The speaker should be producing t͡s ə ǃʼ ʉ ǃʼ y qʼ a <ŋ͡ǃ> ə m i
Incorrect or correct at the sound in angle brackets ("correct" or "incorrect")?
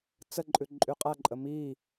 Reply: incorrect